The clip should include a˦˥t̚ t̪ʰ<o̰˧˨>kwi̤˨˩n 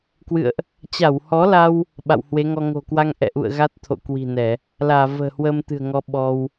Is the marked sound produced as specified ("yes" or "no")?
yes